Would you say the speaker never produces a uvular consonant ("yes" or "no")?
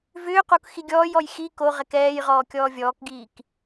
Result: no